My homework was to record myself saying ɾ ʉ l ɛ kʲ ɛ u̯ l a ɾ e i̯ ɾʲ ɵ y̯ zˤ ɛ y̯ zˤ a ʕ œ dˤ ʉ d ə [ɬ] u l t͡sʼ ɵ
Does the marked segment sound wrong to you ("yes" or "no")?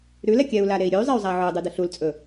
no